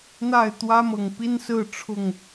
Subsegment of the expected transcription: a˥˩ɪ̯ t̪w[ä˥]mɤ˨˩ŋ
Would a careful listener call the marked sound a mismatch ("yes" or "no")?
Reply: no